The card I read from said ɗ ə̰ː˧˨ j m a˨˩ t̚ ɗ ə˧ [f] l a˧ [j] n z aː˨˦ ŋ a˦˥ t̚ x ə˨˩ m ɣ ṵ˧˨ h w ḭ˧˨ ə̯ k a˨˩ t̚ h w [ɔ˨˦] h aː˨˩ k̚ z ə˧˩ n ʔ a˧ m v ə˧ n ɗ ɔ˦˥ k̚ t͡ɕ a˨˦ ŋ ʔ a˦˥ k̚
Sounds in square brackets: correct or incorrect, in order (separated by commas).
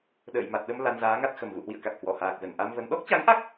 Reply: incorrect, incorrect, incorrect